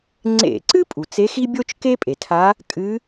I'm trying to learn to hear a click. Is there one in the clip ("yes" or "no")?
yes